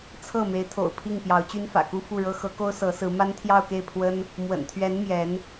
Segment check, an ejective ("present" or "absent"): absent